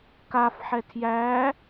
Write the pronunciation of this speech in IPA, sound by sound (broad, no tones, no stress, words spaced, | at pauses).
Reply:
kafħɛ tʰjæ